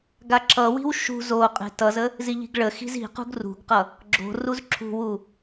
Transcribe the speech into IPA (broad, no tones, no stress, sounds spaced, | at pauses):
ɡ a ǁ ʌ w i̤ w ʃ ṳ z o qʼ e̤ t ʌ z ə | z i ʎ i̤ ɡ ɭ ə x i̤ z i̤ q ṳ ɡ r ṳ ɡ q ʌ | ɡ͡ǁ o̤ r u z ǁʰ ṳ w u